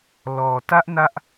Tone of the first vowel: low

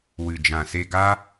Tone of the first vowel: low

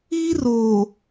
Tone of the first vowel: high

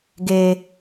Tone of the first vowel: high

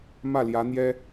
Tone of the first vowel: falling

